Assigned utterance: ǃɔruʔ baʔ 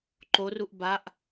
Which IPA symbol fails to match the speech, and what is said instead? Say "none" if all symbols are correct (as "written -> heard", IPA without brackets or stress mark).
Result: ɔ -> o